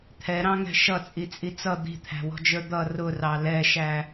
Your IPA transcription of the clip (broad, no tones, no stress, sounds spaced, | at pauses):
t̪ʰ ɛ ɾ ɑ̃ ŋ ɛ̤ ʃ ʌ t͡sʼ i t͡sʼ i t͡s ʌ d̪ i̤ t̪ʰ æ̤ w ɔ̤ d͡ʒ ə˞ d̪ ʌ r ʊ r ɑ l ɛ ʃ æ